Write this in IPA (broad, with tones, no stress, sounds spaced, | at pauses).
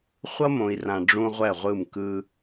χʷ ʌ˦ m õ˨ i̯ r ã˨ ɖ͡ʐ ũ˦ ʁʷ ɛ˦˨ ʁʷ ɯ˦˨ m k ɯ˦